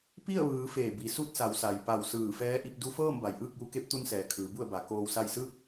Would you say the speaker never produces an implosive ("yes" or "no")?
yes